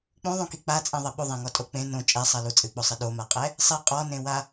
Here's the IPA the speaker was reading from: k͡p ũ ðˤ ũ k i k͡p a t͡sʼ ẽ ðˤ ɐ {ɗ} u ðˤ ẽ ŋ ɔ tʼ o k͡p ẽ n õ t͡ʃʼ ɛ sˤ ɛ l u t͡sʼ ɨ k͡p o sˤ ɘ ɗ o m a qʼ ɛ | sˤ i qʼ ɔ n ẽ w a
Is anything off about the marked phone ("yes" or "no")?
yes